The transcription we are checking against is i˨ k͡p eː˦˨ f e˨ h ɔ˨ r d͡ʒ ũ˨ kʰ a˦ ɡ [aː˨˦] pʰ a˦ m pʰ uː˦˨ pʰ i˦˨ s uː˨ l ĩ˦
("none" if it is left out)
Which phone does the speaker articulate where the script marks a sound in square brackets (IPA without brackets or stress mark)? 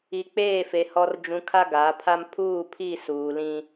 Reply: aː˨˦